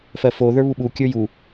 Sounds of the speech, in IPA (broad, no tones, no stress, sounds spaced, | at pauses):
f ɜ f o ð ə˞ β u ɓ u kʲ ə˞ j u